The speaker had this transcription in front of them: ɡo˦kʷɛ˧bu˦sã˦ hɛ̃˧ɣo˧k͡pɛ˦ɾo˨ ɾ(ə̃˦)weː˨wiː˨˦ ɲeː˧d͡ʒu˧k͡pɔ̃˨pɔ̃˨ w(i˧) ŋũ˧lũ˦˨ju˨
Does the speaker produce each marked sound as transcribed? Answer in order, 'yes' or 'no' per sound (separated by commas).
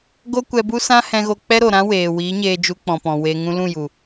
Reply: no, no